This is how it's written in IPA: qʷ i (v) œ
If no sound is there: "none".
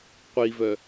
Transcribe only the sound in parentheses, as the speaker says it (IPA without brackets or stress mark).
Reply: v